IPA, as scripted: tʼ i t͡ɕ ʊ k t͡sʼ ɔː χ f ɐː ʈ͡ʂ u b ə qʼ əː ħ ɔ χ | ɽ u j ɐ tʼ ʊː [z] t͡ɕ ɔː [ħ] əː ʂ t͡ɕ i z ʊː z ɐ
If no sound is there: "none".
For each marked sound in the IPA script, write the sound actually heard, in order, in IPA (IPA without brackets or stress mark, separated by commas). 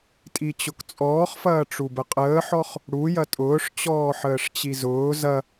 ʂ, ħ